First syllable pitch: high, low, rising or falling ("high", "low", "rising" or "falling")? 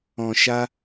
low